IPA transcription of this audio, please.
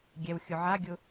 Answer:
ɡʲ ɛ w xʲ ʊ ʕ a ɡʲ ʊ

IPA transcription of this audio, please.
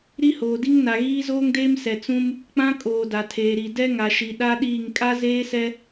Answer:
ɾ i˦ h oː˨ d i˦ ŋ n a˨ ɣ iː˦ z oː˦ ŋ d eː˦ m s ɛ˨ t͡s ũ˦ m | k͡p ã˦ kʼ oː˨ d a˨ tʰ eː˨ ɾ i˨ d ɛ˦ ŋ a˨ ʃ i˨ ɗ a˦ ɗ iː˦˨ ŋ kʼ a˦ z eː˦ s ɛ˦

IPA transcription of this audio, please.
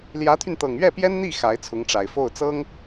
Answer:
l j ä˧˥ t̪ʰ y˧ n t̪ ɤ˨˩ ŋ ɥ ɛ˥˩ p j ɛ˥ n n̪ i˥˩ x a˧˥ ɪ̯ t͡sʰ ʊ˧˥ ŋ ʈ͡ʂ a˨˩ ɪ̯ f o˥˩ ʊ̯ t͡s ɤ˥ ŋ

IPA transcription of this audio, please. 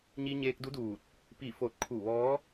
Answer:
ɲ i˧ ɲ eː˧ k̚ d u˧˥ d uː˧˩ t̚ | p i˧˩ f o˧˩ t̚ kʰ u˧˩ ʋ ɔː˧˥

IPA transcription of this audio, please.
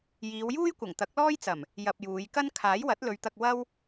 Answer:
j iː˨˧ w j uː˥ j kʷ ɐ˨˩ ŋ t̪ ɐ˨˥ k̚ l ɔː˥ j t͡s ɐ˨˩ m | j ɐ˧ p̚ j uː˨˧ j k ɐ˥ n kʰ aː˨˥ j w ɐ˨˥ t̚ l ɵ˨˧ ɥ t̪ ɐ˧ k̚ w ɐ˥ w

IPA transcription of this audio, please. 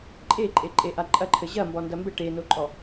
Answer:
ǃʼ e ǃʼ e ǃʼ e ʔ a ǃʼ ɐ ǃʰ ɘ ʑ ɐ m b ɔ n d ɐ m b ɘ ʈ e n o ǃʼ ɔ

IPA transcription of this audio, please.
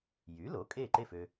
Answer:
j y˩˥ l o˩˥ kʼ e˥˩ ǃ e˥˩ f ø˥

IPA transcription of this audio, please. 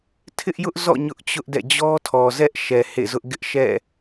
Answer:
tʰ ɪ˦ ʔ j ʊ˦ ʔ z ɔ̰˦˨ ɲ ʊ˦ ʔ t͡ɕ ʊ˦ ʔ d ɛ̰˦˨ d͡ʑ ɔ˦ tʰ ɔ˨ z ɛ˦ ʔ ʃ ɛ˨ h ḛ˦˨ z ʊ˦ ʔ ɡ ɪ˦ ʔ ʃ ɛ̰˦˨

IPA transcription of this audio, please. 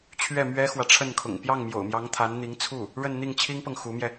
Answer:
t͡ɕʰ ɥ ɛ˥˩ m ɥ ɛ˥ x w ä˨ ʈ͡ʂʰ ə˥˩ n kʰ ʊ̰˨˩ ŋ p j ɑ˥˩ ŋ m j o̰˨˩ ʊ̯ m j ɑ˧˥ ŋ t̪ʰ a˧˥ n n̪ i˧˥ ŋ t͡sʰ u˥˩ | ɻ ə˥˧ n n̪ i˥˩ ŋ t͡ɕʰ i˥ ŋ p ɤ˨ ŋ x u˧˥ m j ɛ˧

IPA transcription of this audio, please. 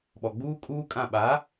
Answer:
ɓ ɔ˨ ɡ͡b uː˦ kʼ uː˦ kʼ ã˦˨ ɓ a˨˦

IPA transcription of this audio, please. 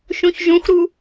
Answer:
ʃ ũ ç ʒ ũ x ɾ u

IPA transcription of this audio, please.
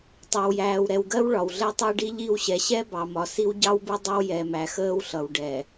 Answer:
tˤ ɛ˨ w j æː˨ w ɾ ɛ˨ w ɡ ɜ˦ w ɭ ɒ˨ w ɮ ɛ˦ tˤ ɜ˦ ɖ i˦ ʎ i˦˨ w ɕ ɛ˨ ɕ ɛ˦ b ɑ˨ m ɒ˨ s i˦ w ɟ ɑ˦ w b ɪ˦ dˤ ɪ˦ w j ɛ˨ m æ˨ x əː˦ w ɬ ʌ˨ w ɖ ɛ˨

